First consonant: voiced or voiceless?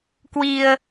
voiceless